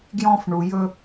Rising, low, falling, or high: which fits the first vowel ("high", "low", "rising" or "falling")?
high